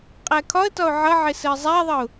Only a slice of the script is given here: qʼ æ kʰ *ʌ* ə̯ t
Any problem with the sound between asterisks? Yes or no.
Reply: yes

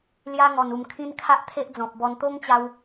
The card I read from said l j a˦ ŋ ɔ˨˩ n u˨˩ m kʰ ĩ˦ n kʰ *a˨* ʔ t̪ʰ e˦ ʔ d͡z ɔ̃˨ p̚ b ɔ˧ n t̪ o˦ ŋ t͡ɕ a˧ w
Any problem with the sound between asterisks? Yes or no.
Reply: yes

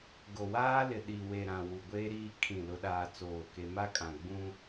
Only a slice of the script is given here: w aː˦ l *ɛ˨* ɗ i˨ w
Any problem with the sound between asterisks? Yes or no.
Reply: yes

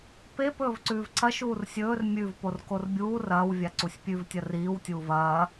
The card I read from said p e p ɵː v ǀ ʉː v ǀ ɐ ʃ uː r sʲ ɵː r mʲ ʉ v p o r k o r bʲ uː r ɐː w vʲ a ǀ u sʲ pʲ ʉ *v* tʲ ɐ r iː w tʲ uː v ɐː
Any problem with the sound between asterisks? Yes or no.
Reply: no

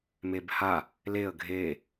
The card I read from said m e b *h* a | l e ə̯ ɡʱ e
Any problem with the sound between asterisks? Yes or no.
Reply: no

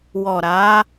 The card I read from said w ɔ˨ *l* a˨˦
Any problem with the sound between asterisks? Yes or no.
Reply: yes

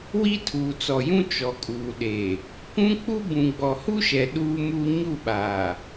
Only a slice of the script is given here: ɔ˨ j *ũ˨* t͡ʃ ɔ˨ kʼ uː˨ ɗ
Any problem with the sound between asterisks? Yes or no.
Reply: yes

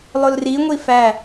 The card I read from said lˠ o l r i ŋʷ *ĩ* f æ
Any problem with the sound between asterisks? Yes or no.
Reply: yes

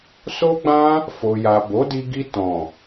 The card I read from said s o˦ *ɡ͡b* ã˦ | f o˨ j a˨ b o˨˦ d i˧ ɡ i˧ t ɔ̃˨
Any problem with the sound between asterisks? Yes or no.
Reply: no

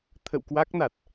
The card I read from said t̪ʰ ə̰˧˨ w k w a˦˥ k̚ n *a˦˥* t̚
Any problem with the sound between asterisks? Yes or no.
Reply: yes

